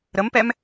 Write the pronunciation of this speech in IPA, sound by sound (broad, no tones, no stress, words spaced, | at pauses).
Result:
ɾəmpɛm